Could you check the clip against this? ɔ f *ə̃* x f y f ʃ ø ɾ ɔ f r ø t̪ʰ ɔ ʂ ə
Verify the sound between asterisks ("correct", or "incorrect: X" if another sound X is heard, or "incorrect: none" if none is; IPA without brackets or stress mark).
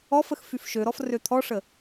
incorrect: ə